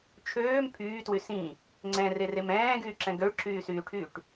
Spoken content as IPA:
t͡ʃʰ øː m pʰ yː t w y s ĩ | ŋ͡ǀ ɛ̃ r e r e m ɛ̃ː ɡ yː ǁ ɛ̃ ɡ ø ɭ ǁ yː s yː ʈʰ yː ʈ

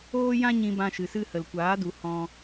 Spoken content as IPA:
oː˦ j ã˦ ɲ ĩ˧ b ã˧ ʃ ɨ˨ s ɨ˧ h ə˨ l kʷ aː˨˦ d u˨ h ɔ̃˧

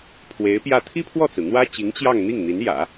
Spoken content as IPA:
pʰ w e˧˥ ɪ̯ p j ä˥˩ t̪ʰ i˥ pʰ w ɔ˥˩ t͡s ɹ̩˩ n̪ w ä˥ t͡ɕ i˧˥ ŋ t͡ɕ j ɑ˥˧ ŋ n̪ i˥˩ ŋ n̪ i˧˥ n j ä̰˨˩˦

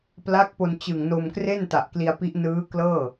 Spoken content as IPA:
p l a˦˥ k̚ p o˧ n t͡ɕ ɯ˨˩ ŋ n o˧ m k r e˥˩ n t a˨˩ ʔ k l i˧ a̯ p i˦˥ ʔ n ɯː˦˥ k l ɤː˥˩

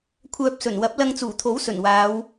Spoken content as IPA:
kʷʰ œː˧ p̚ s ɵ˨˩ n w ɐ˨˥ p̚ l ɐ˧ ŋ t͡s uː˨˩ t̪ʰ o˨˥ w s ɵ˨˩ n w aː˨˧ w

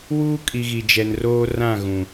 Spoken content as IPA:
w uː˦ kʼ i˨ ɣ i˨ d͡ʒ ɛ˨ n r oː˦ r ã˦˨ ɣ ũ˨

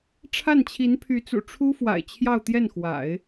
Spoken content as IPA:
ʈ͡ʂʰ a˥˩ n t͡ɕʰ i˧˥ n pʰ y˧˥ t͡s ṵ˨˩ ʈ͡ʂʰ u˥ f w a̰˨˩ ɪ̯ t͡ɕʰ j ɑ˥˧ ʊ̯ t̪ j ɛ˥˩ n x w a̰˨˩˦ ɪ̯

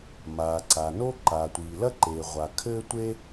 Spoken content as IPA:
m aː˨ ǀ a˨ n o˥ ǃ a˨ tʷ iː˨ l ɐ˥ ǃ eː˨ ʁʷ a˨ kʰ ɘː˥ tʷ e˥

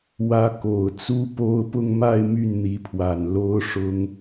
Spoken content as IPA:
w ä˧˥ k o˨˩ ʊ̯ t͡s u˥ p o˥ ʊ̯ p ʊ˥˧ ŋ m a˥˧ ɪ̯ m y˥˩ n n̪ i˧˥ pʰ w a˨˩ n l o˥ ʊ̯ ʂ ʊ˥ ŋ

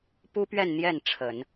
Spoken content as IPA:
p u˥ p ɥ ɛ˥˧ n n̪ j ɛ˥˩ n ʈ͡ʂʰ ə˨˩˦ n

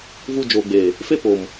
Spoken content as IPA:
v u˧ d͡ʒ oː˨ ɡ͡b eː˨ | f e˦ p o˨ m

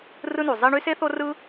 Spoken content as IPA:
r ɯ˥ n u˩ zˤ i˥ ɳ y˥ s e˥ θ o˥ r ɯ˥

